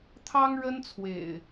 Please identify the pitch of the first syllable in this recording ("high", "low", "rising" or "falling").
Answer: high